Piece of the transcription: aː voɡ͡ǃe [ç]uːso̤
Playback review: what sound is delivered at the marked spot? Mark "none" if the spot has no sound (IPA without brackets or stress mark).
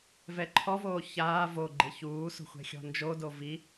ç